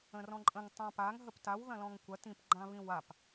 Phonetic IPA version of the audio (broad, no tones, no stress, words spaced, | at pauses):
ə̃rɔ̃ǃʼə̃ŋ tˤãpaŋ ɦəptaw ðɐ̃lɔ̃ŋkʷɐ tĩp ɡ͡ǃãβĩwap